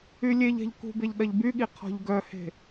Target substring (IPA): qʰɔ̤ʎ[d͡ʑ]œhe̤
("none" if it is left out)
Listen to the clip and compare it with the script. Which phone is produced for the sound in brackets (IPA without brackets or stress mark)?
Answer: ɡ